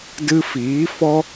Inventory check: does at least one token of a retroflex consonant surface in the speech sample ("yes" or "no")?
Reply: no